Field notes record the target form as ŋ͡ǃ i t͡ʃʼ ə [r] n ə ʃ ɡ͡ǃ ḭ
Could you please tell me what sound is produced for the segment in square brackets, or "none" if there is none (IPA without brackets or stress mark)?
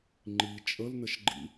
l